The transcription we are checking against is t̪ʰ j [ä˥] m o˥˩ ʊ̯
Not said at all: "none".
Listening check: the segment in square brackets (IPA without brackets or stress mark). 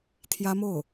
ä˥